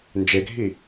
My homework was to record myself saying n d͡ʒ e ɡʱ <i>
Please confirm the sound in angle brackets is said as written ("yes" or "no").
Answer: yes